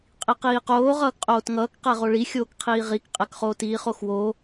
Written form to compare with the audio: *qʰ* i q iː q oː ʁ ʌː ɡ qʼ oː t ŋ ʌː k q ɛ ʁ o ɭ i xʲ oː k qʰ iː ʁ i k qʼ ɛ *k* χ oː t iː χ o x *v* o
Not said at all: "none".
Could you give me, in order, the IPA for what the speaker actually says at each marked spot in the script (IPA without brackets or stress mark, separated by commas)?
qʼ, k, w